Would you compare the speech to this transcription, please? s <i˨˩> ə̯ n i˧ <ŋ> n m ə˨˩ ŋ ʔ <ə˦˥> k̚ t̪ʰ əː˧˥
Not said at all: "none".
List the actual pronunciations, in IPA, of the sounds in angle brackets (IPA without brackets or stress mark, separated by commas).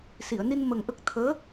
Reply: i˨˩˨, none, ə˦˥